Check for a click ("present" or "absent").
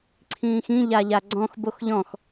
present